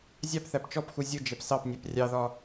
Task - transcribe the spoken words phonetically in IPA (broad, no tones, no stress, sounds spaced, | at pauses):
zʲ ɑ p θ æ p t͡ʃ ɔ p x u zʲ ʊ d͡ʒ ɛ p s ɑ p nʲ æ p rʲ ɑ ð ɒ